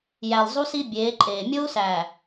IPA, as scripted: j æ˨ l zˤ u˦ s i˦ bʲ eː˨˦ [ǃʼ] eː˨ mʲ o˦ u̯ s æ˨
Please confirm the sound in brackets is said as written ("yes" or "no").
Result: yes